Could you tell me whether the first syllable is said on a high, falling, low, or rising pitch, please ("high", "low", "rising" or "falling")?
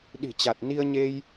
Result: low